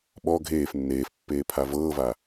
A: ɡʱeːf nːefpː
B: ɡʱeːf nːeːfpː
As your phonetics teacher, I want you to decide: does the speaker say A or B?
B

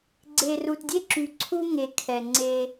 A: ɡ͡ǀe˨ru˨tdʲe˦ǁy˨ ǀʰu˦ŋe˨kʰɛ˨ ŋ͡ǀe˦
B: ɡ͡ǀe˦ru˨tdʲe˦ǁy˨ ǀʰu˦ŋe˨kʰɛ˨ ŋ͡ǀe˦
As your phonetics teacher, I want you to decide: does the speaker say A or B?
A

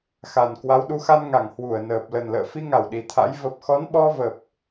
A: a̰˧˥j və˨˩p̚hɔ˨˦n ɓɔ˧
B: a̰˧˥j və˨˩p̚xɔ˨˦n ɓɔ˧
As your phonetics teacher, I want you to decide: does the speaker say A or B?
B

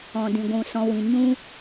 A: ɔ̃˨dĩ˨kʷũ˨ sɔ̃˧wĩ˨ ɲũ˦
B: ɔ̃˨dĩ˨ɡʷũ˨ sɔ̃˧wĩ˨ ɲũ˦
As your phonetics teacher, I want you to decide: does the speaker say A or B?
B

